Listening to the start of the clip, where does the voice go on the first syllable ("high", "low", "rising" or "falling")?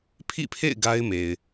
falling